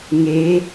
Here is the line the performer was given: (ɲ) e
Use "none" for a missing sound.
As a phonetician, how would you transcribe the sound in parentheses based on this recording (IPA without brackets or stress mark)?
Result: ŋ